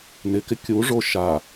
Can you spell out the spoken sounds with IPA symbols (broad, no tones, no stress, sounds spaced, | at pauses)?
n ɪ k ɪ kʲ u ʐ o ʃ a